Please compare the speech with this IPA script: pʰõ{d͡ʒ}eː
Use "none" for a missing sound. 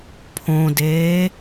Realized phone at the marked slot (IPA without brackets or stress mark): d